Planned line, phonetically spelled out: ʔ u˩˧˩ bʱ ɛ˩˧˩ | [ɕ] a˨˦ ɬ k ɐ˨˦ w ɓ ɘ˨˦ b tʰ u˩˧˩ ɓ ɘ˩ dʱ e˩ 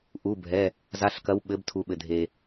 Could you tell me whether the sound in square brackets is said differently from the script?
yes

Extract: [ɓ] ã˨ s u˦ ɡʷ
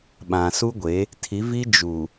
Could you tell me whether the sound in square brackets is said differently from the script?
no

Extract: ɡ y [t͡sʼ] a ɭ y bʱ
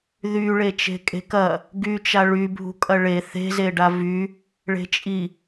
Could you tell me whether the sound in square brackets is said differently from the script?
yes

